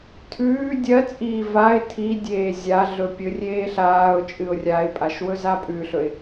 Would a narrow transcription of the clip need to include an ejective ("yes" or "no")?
yes